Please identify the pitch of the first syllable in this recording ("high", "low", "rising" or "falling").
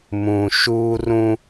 low